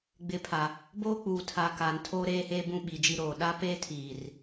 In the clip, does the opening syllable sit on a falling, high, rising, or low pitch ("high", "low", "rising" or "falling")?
rising